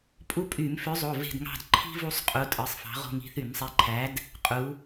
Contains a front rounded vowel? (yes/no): yes